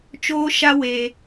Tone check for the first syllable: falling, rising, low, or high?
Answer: high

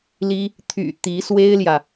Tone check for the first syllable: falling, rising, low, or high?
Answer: high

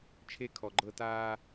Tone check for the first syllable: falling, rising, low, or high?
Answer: high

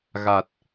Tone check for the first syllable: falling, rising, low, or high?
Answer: low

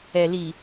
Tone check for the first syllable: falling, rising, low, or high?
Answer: low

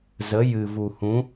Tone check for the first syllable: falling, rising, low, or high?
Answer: rising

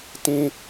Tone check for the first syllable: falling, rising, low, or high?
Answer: high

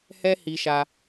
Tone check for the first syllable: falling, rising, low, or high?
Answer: high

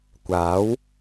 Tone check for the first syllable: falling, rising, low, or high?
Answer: rising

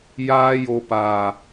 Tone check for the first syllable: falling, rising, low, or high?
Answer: high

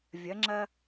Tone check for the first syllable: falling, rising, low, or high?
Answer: rising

